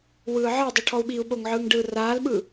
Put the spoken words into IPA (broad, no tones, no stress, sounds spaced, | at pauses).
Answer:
w ɯː ʕ ɤ dˤ i ʈʰ ɔ u̯ ɓ iː u̯ ɓ o ŋ ʕ ɯː ŋ ɖ ɯː r aː l ɓ ɯ